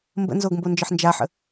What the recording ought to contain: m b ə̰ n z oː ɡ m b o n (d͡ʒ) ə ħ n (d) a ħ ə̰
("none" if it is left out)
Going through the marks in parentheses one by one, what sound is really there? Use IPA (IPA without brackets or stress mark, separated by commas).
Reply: d͡ʒ, d͡ʒ